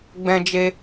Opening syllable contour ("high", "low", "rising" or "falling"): high